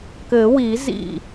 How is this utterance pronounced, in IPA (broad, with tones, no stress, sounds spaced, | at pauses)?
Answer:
k ɘ˨˩˦ w i˨˩˦ z ḭ˥˩